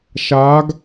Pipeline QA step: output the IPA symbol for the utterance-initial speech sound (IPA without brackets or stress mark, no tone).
ʃ